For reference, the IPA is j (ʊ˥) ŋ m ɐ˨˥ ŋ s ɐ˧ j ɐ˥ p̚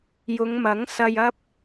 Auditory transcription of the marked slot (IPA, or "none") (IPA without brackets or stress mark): ʊ˨˧